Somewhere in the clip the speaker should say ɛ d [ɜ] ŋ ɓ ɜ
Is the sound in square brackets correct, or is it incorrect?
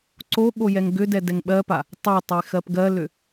incorrect